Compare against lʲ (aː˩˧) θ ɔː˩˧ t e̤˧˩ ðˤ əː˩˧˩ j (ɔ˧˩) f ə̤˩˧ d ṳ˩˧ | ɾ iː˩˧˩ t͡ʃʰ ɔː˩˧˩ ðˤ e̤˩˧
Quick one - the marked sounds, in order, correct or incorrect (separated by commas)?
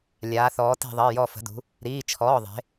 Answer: correct, correct